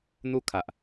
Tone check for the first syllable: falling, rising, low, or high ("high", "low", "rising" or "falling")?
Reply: high